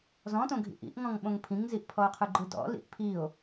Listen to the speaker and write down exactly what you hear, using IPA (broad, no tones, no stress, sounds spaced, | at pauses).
z ɔ̃ t õ ɡʱ ḭ ʔ ḭ ʔ ŋ ɔ̃ ŋ ɓ õ ŋ pʰ ĩ ŋ z i ʔ pʰ ɔ o̯ qʰ ɯ ɡ͡ǃ ɯ d ɔ̰ l ḭ ʔ pʰ i o̯